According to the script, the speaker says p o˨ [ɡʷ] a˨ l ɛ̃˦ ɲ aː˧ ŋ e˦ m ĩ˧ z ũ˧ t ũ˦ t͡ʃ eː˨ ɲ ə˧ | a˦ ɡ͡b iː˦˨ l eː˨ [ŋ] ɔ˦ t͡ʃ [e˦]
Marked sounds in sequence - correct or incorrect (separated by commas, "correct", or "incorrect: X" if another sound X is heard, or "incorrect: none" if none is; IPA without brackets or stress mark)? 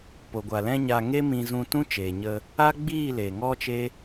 correct, correct, correct